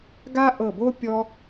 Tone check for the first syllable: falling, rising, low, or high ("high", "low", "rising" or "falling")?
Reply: high